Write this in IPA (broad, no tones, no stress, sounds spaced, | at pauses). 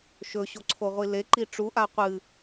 ʃ ɵ ɕ o ǀʰ o ʁʷ i l e ǃ i ʈ͡ʂ u ʔ a qʷ ɨ